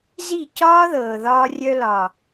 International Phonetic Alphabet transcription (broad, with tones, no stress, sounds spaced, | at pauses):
z i˦˨ c ɒː˦ ð ɤː˨ ð ɒː˧ rʲ œ˧ l ɒ˨